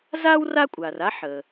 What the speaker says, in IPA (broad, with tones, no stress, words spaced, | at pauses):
zaː˥w ra˥ kʷʼaː˩ra˥ ħə˩